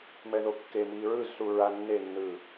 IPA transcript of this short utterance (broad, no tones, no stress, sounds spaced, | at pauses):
m ɛ ð o kː e m iː ɹ ɯ z s u ɹ a nː e nː ɯː